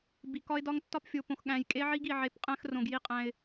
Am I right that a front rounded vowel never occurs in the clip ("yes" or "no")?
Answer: yes